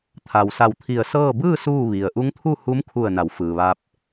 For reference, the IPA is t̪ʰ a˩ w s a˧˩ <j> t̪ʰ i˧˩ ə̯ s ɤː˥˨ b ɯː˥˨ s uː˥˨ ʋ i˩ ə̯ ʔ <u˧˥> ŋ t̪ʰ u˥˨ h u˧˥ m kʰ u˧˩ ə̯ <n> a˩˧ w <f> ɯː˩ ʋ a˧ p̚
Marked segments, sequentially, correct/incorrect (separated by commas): incorrect, correct, correct, correct